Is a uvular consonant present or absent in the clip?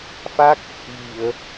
absent